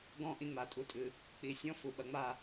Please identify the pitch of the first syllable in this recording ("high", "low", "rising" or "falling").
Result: high